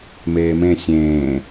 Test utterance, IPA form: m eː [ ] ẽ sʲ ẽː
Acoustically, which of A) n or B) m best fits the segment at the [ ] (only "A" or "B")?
B